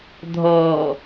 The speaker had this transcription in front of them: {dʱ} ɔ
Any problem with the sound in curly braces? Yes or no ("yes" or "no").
no